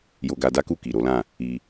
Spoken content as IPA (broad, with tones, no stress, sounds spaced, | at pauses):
j o˧ ɡ a˧ d a˦ k u˦˨ k i˨ ɾ o˨˦ l ã˦˨ | i˧